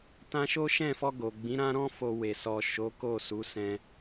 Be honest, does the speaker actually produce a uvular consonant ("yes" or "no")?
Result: no